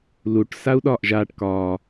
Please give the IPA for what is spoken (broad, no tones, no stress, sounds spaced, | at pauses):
l u ʈ s a u̯ ɗ ɒː ʔ ʒ aː ʈ k ɒː